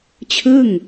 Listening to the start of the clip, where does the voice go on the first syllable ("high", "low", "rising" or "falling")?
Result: falling